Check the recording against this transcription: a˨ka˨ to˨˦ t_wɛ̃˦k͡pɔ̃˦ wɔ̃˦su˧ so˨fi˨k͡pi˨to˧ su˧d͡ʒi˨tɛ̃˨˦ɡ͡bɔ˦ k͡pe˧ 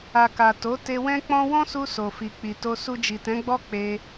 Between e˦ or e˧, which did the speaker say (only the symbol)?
e˧